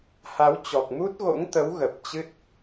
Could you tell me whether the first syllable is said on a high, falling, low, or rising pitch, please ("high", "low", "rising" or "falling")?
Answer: rising